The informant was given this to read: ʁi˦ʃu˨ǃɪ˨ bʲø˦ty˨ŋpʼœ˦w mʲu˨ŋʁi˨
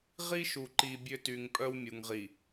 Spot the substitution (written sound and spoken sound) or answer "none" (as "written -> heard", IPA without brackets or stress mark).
ɪ˨ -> i˨